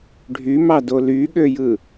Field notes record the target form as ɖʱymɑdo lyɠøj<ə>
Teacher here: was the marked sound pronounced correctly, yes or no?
no